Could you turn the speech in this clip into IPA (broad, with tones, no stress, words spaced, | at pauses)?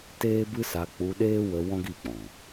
teː˦bɨ˦sa˧ k͡pu˧ɗeː˦wə˧ wɔ̃˦ ɡi˦˨k͡pɔ̃˨